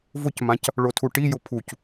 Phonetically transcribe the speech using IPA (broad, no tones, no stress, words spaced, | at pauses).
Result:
vʊcmãc | ɭotʰuʈijʊ pʰuc